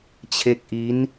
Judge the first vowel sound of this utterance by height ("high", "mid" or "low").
mid